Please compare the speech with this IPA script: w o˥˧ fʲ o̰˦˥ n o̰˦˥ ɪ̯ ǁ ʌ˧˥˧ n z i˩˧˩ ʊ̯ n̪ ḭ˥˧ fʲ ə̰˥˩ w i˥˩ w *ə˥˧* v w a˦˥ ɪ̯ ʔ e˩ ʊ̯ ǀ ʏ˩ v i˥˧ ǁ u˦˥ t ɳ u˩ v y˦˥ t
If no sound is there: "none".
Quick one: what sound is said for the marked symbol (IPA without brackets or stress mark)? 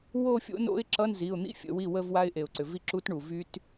ə˥˧